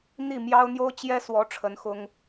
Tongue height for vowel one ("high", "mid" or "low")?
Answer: high